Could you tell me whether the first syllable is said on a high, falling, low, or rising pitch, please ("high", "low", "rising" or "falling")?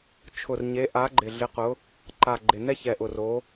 low